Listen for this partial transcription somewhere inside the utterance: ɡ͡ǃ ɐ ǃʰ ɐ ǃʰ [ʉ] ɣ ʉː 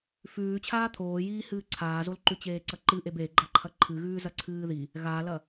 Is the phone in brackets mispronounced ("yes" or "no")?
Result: yes